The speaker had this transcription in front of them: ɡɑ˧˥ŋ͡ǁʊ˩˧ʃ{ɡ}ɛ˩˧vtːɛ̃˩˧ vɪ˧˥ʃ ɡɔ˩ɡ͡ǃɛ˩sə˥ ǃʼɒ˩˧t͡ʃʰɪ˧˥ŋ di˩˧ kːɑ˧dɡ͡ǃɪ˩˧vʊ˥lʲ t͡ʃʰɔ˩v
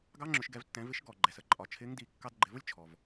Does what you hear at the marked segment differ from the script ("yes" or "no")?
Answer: no